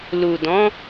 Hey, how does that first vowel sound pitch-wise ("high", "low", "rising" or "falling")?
low